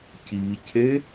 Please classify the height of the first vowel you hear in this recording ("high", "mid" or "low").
high